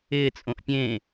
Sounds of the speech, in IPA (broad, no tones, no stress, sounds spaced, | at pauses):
ɪː t͡sʼ õ ʔ pʲ ẽ